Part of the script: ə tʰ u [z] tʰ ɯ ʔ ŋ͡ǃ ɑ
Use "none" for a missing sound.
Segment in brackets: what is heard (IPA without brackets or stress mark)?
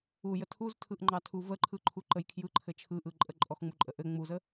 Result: z